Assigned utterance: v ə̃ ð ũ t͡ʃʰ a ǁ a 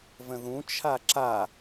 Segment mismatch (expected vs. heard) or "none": none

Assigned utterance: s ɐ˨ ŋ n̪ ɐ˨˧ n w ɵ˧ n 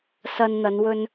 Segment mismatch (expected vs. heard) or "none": ŋ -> n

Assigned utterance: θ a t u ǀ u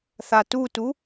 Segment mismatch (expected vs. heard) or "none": ǀ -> t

